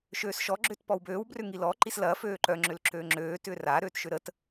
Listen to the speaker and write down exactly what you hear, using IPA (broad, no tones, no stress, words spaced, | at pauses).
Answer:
ʃøːsʃɔ ɡ͡ǁʏːtpɔwbøːw brʏŋilɔ ǃislɐː føːǃœ ŋ͡ǁʏlǁøːŋ͡ǁøː tʏːra ɾøːtʃʏɾət